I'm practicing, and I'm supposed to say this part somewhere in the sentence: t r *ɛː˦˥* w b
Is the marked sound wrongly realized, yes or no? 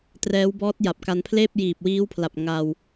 no